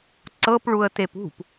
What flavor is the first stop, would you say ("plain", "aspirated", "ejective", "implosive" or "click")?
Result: click